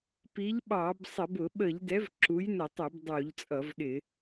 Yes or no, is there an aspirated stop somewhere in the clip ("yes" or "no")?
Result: no